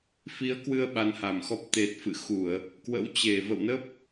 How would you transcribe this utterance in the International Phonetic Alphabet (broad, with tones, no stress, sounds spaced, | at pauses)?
f i˨˦ ə̯ k w ɨ˧ ə̯ ɓ a˨˦ n h a˧˩ m x ɔ˦˥ p̚ t̪ e˨˩ t̚ f ɨ̰˧˨ x u˧˩˨ ə̯ | k w ə̰˧˥ w t͡ɕ e˧˩ v ə̰˧˨ w n ə˦˥ p̚